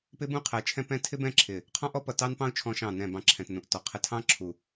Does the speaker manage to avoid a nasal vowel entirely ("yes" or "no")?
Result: no